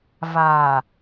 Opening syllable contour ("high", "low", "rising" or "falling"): low